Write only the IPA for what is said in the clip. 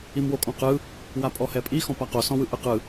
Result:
i m w o kʼ ɔ̃ q ɯ | w a pʼ ɔ h ɛ pʼ i x ɔ̃ p a q o s ɔ̃ w ɯ ʔ ɯ q ɯ

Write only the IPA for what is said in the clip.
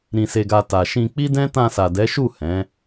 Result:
ɾ ĩ˨ s e˨ ɡ a˨ t a˨ ʃ ĩ˧ k͡p i˦ d ɛ̃˦ t ã˧ s a˨ d ɛ˨˦ ʃ u˦˨ h ɛ̃˨˦

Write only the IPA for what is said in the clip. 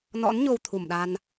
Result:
n ɔ̰˧˥ n ɲ o˧ w t̪ʰ u˧˩ m ɗ a˧ n

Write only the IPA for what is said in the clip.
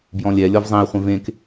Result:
b j ɔ̃ lʲ ɛ lʲ ɔ v zˤ ẽ i̯ χʷ ẽ v ẽ k

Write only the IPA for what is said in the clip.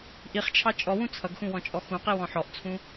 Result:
ʔ i χ t͡ʃʰ ɑ t͡ʃʼ ɔ w ũ t͡sʰ ʌ ɡ x ũ w ɔ̃ t͡ʃʼ ɔ x ũ q i w ɔ̃ ħ ɔ ʔ t͡sʰ ũ

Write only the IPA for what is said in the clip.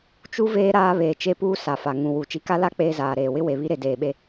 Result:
t͡ʃ u˦ v eː˦ ɾ aː˦ β eː˨ t͡ʃ e˦ p uː˦ s a˨ f a˨ ŋ ũ˨ w u˨ t͡ʃ i˨ k a˦ l a˦ k͡p eː˦ z aː˨ ɾ eː˨ w ɪ˦ w e˨ β i˦ ɾ e˨ d eː˨ ɓ e˦

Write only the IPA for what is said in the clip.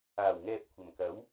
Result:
aː˨˩ w ŋ ɛː˨ p̚ kʷʰ ɐ˨˩ m k ɐ˨˥ w

